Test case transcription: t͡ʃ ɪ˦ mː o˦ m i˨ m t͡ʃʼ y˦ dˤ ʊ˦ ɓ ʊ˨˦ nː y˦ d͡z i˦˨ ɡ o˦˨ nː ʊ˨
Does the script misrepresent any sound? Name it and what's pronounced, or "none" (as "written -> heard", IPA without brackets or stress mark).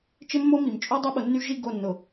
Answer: d͡z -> ʒ